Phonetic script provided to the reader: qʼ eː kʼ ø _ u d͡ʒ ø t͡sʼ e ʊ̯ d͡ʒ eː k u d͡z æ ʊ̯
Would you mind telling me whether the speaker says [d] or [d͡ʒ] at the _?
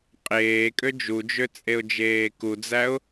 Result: d͡ʒ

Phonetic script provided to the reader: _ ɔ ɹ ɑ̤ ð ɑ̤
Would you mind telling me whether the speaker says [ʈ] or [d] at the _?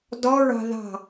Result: d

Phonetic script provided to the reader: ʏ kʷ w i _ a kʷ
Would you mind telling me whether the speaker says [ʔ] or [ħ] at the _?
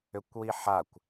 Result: ħ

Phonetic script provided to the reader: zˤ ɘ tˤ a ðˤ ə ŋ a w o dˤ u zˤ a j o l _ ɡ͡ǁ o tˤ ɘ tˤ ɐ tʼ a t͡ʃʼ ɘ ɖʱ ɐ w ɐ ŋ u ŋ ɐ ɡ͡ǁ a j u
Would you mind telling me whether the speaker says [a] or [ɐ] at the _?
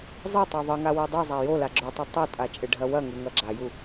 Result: a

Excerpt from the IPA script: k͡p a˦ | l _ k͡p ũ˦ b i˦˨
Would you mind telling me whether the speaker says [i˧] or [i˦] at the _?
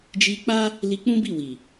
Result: i˧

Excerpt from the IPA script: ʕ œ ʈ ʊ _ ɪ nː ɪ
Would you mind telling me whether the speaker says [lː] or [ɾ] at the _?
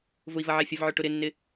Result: ɾ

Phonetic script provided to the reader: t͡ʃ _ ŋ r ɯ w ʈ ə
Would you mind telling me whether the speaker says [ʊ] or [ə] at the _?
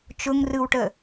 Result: ʊ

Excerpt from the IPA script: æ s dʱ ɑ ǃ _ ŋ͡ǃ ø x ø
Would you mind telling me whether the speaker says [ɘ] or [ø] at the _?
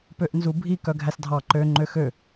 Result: ø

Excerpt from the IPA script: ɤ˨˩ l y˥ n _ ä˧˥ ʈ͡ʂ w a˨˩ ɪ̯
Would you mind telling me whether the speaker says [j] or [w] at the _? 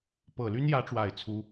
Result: j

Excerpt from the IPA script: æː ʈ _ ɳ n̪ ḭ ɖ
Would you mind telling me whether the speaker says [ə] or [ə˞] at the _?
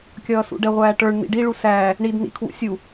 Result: ə˞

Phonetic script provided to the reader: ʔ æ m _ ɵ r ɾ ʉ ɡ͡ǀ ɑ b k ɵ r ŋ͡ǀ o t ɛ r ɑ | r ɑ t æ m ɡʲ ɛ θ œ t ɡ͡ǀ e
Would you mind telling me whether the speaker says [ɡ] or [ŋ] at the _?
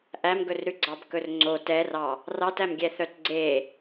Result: ɡ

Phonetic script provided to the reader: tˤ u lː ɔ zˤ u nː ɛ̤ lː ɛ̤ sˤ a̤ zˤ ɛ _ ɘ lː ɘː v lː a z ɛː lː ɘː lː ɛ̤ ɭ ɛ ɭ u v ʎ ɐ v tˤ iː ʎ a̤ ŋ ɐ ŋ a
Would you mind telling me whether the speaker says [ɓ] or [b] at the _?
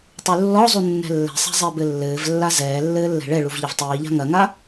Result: b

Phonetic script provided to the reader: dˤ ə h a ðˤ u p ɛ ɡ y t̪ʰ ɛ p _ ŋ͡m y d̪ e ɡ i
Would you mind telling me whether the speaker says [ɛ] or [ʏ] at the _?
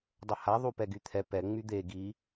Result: ɛ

